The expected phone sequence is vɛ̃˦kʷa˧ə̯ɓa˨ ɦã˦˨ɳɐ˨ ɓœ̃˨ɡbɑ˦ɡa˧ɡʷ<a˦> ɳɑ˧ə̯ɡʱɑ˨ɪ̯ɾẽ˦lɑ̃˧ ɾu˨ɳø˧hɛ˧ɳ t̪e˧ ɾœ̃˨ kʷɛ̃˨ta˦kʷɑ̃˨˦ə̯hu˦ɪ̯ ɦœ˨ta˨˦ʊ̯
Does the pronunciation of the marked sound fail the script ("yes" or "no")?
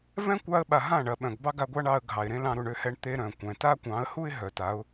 no